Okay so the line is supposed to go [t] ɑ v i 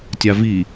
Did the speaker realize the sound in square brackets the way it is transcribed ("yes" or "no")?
no